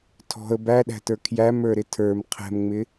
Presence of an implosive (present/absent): present